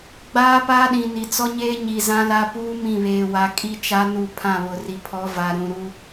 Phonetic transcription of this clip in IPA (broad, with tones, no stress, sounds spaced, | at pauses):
ɡ͡b aː˦ p aː˦ ɗ ĩ˨ n i˨ t͡s ɔ˦ ɲ eː˦ ɲ i˨ z ã˦ l a˦ p uː˦ m ĩ˦˨ β eː˨ w a˨ kʼ i˦ t͡ʃ a˦ n u˦˨ pʰ ã˦˨ β ʊ˨ r i˨ pʰ ɔ˨˦ v a˨ ɾ ũ˨ ɾ u˦